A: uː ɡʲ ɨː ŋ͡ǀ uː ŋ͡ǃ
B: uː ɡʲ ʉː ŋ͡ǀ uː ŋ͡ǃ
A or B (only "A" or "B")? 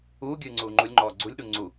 A